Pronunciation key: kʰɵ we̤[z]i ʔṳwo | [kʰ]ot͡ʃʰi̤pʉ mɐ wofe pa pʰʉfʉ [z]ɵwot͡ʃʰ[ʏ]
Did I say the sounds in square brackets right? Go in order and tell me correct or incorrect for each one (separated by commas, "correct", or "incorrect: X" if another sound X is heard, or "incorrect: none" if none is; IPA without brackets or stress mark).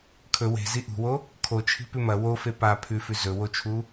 correct, correct, correct, incorrect: u